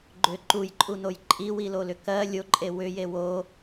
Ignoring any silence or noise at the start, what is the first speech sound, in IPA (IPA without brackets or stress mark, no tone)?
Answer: ɡ͡ǃ